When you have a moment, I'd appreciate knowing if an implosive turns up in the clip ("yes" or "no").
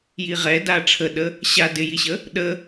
yes